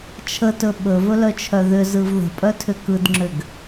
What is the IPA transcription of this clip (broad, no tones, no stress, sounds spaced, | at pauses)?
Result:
t͡ʃʰ ə t ɵ ɓ ɵ v ɵ l œ t͡ʃʰ œ ð ʏ z ɯ v ð ə̤ pʼ œ tʰ ʏ k ɯ d ŋ͡ǁ ʏ ɡ